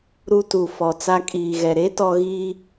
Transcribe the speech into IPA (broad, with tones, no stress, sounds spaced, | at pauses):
ɾ u˦ t u˨ f ɔ˨ t͡s a˦ kʼ iː˨ ɣ ɛ˨ ɾ e˦ t ɔ˨ ɣ iː˦